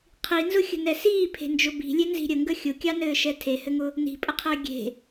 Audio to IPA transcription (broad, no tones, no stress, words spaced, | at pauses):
qʰinzʊxʲə̤nɛ siːpʰe̤nd͡ʒʊ bi̤lʲenzi̤ ɾʲəŋɡə xʲʊkʲɑnɘːʃɛ tʰehɘŋʊ | ni̤pʼəqʰɘː ɡʲe̤